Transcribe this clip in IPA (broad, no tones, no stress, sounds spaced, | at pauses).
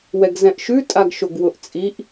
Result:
w ɛ ɡ z ɛ̃ ʔ ʃ ʉ tʼ a ɡ ʃ o ɡ w ʊ ʔ t͡sʼ i ʔ